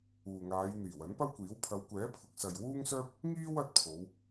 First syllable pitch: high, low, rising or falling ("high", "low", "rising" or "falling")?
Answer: low